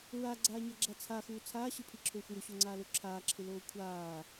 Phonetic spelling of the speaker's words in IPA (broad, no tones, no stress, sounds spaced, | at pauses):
ɹ a ɡ͡ǀ aː ɲ a ɡ͡ǁ a t͡sʰ a x uː t͡sʰ aː ɕ ɪ pʰ i ǁʰ oː xʷ j ʊ ɕ o ŋ͡ǀ aː l o ǁʰ aː ǁʰ ɪ l oː kʷʰ aː